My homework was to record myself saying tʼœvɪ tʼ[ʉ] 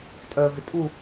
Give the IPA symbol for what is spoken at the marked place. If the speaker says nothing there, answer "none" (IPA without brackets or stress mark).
u